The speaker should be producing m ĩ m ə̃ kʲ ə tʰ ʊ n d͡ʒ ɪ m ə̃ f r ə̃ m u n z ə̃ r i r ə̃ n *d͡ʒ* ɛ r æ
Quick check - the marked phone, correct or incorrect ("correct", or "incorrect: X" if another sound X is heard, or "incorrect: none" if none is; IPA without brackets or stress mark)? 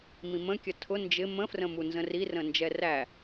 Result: correct